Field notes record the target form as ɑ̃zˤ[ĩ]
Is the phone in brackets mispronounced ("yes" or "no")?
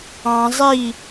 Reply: yes